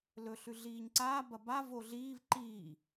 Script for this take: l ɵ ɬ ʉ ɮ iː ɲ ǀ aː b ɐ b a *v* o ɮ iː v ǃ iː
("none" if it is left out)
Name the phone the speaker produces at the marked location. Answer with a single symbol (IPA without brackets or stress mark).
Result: v